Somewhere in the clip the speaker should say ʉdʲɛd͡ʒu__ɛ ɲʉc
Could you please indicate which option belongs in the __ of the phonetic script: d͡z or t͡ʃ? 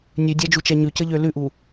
t͡ʃ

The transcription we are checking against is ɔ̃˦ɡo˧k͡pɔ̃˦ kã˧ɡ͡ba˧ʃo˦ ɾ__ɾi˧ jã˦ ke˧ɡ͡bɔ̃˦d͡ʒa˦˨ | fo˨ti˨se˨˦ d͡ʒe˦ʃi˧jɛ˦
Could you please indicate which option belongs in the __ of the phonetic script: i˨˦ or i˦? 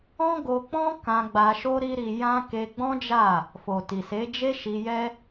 i˦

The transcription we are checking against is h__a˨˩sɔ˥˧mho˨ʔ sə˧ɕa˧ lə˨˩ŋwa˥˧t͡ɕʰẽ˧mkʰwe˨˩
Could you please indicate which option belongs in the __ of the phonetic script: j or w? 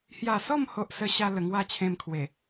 j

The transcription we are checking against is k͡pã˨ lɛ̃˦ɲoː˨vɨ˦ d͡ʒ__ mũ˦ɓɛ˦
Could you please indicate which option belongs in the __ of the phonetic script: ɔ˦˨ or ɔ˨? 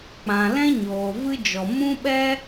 ɔ˨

